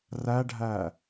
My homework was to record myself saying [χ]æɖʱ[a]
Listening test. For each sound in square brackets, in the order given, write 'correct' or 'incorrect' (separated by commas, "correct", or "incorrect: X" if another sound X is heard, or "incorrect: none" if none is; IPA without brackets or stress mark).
incorrect: r, incorrect: æ